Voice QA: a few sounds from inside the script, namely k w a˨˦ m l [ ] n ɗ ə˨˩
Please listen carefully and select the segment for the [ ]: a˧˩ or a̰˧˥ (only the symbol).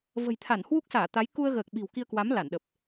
a˧˩